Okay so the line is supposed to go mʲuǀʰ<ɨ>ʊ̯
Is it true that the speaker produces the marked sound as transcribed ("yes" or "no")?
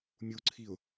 no